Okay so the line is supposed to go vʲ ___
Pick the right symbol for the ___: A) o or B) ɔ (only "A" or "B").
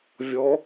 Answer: B